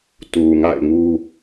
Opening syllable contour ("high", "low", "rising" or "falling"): low